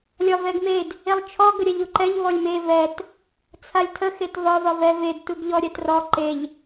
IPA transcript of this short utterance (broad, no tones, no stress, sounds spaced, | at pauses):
lʲ ɒ v ɛ ɡ m e d | e lˠ t͡ʃʰ ɔ ɡ ə ɾʲ ɛ ʎ u ǃ ɛ ʎ v ɔ lʲ m e v ɛ t | t͡sʰ a lʲ tʰ ə x e t v ɒ v ɒ v ɛ v e d t u ɡ ʎ ɔ ɾʲ ɛ t r ɔ ǃ e ʎ